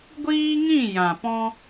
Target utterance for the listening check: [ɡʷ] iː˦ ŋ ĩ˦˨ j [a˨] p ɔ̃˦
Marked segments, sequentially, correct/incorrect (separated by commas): correct, incorrect